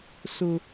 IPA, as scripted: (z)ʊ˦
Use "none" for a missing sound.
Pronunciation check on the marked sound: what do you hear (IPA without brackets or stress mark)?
s